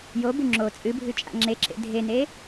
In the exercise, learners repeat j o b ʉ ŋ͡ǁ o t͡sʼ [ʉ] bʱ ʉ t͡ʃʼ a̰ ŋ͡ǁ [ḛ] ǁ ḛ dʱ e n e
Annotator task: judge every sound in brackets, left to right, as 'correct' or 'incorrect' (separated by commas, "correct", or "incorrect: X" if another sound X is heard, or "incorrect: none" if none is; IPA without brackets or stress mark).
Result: incorrect: ɨ, incorrect: e